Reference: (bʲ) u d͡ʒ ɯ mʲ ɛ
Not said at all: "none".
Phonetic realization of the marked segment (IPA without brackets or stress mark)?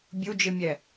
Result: bʲ